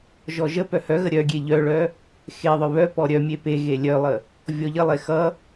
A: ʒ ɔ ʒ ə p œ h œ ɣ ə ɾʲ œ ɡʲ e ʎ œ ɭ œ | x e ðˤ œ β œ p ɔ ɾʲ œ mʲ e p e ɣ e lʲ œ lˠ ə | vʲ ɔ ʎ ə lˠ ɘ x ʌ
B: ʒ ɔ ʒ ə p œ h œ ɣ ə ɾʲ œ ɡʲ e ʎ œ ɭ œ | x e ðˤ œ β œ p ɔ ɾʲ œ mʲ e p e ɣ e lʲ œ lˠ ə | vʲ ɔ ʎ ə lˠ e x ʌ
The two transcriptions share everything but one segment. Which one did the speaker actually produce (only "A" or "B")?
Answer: B